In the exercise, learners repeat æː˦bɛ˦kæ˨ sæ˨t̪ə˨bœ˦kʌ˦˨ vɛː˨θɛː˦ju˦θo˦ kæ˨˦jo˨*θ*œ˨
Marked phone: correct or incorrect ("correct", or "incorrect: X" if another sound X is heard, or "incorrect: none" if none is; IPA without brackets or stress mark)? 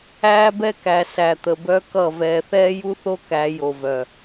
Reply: incorrect: v